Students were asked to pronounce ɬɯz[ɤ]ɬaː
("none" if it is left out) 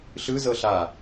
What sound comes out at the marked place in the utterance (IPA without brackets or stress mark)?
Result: ɤ